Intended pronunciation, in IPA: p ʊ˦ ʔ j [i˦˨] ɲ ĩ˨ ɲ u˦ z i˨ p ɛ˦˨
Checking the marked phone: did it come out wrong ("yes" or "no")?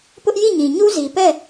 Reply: no